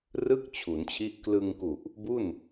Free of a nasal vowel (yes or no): yes